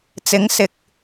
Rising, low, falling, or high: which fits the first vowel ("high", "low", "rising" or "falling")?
rising